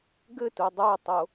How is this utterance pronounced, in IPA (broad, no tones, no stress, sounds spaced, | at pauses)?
ɡ ɘ t u dˤ o tˤ o